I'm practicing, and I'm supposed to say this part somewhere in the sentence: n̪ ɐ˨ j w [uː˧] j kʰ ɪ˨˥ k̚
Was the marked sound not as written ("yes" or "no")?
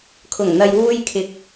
no